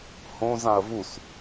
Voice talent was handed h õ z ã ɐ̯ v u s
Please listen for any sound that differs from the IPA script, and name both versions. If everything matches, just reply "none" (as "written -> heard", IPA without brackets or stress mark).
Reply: none